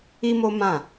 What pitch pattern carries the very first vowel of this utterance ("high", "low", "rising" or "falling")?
high